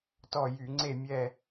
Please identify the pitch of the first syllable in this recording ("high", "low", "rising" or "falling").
falling